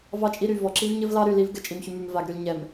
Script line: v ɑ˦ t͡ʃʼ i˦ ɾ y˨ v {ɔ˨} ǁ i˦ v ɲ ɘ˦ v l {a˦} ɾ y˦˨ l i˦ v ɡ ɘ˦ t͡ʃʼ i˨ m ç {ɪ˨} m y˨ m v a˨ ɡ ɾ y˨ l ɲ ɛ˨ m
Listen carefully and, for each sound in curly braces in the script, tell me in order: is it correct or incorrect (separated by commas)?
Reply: correct, incorrect, incorrect